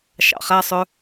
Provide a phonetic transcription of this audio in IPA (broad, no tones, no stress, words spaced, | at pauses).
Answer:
ʃɑ̰χæ sˤœ